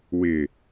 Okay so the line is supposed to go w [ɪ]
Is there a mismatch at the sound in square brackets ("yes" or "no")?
no